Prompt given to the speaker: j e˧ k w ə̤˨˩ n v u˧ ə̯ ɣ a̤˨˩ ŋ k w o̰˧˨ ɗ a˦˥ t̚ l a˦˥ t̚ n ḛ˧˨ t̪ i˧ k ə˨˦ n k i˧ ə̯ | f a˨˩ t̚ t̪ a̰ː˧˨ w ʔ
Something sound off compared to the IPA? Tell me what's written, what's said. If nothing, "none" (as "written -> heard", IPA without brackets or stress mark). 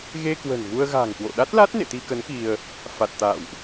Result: j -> ɣ